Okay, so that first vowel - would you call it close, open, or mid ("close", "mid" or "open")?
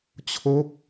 mid